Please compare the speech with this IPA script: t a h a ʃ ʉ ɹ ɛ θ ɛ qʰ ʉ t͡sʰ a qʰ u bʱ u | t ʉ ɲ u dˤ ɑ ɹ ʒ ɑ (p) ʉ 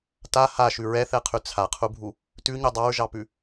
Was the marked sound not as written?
no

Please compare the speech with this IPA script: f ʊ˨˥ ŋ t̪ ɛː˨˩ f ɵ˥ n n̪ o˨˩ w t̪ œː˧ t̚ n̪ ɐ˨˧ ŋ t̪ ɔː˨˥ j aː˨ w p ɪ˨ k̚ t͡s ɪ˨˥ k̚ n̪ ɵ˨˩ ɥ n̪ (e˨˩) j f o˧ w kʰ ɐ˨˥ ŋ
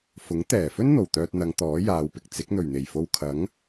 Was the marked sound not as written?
no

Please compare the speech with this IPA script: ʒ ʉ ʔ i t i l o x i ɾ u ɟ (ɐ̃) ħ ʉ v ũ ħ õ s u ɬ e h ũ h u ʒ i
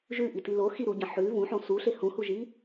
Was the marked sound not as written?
no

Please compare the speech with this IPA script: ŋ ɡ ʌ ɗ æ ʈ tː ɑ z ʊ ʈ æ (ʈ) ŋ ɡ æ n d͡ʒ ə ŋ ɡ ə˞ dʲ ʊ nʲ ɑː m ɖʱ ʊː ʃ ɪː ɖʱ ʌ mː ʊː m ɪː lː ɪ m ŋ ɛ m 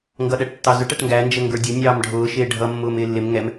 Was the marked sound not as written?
no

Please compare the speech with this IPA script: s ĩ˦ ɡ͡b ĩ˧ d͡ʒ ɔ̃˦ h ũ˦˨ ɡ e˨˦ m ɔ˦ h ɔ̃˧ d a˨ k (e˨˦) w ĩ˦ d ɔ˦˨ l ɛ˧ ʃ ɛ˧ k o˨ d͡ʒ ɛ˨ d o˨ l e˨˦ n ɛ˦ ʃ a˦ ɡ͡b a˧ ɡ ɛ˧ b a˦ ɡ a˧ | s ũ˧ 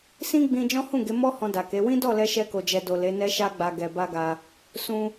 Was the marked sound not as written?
no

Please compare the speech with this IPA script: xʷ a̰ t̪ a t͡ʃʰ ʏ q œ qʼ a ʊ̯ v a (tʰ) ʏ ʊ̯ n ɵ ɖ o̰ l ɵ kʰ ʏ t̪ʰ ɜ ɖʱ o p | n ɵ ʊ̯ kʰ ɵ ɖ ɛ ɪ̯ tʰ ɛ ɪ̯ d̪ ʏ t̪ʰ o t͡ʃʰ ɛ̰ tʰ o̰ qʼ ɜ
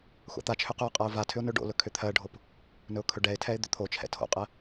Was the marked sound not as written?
no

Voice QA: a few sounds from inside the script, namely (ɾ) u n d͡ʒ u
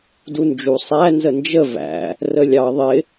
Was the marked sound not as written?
yes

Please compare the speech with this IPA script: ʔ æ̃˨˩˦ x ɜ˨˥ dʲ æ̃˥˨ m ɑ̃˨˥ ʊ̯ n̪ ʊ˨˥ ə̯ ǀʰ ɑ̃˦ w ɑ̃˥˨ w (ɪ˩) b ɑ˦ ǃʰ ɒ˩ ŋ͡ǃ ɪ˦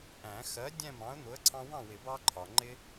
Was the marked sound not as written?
yes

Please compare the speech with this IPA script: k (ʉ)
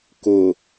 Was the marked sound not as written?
yes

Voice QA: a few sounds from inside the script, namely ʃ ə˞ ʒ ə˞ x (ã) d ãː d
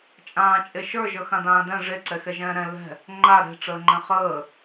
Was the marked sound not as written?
no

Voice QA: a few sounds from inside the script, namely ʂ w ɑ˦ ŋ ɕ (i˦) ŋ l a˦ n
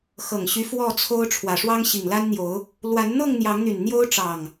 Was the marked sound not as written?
yes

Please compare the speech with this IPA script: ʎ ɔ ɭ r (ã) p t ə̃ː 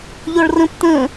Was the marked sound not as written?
yes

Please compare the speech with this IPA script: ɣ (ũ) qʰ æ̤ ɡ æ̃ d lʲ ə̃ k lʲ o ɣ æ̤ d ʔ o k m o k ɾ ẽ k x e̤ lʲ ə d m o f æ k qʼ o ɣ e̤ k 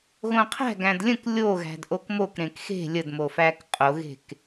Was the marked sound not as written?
yes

